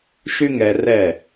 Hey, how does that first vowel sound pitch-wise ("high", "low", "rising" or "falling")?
high